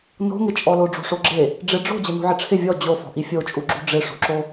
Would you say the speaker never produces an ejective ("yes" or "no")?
no